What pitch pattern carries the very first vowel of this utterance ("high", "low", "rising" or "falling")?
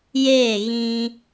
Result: falling